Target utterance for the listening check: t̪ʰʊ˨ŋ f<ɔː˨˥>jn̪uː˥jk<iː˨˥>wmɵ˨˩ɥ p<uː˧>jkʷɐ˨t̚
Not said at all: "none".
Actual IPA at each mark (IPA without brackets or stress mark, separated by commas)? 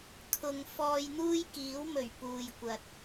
ɔː˧, iː˨˥, uː˨